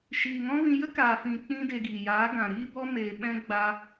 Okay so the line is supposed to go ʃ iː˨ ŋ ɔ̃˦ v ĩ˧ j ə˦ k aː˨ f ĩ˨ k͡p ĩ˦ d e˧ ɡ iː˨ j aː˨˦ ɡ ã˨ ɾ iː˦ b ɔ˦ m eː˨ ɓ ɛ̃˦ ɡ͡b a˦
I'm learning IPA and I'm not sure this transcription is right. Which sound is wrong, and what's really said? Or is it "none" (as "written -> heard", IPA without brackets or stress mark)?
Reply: none